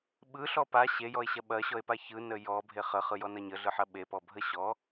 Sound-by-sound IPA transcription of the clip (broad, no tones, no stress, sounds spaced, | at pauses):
ɓ ɯ ɬ ɔ p a ɕ e j ɔ e̯ ɕ ɐ ɓ ɐ ɕ ɔ e̯ p a ç ɯ n ə j ɔ bʱ e χ ə χ ɯ j ɔ n ɐ ɲ ə ɮ ɯ ħ ɐ ɓ e p ɔ bʱ ə ɕ ɔ